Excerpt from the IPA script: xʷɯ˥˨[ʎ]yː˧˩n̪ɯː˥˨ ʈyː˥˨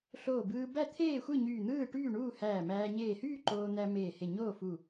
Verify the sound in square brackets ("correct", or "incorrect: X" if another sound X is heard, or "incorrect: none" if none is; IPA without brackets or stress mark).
incorrect: ɲ